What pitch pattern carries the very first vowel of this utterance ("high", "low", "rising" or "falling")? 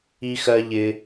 high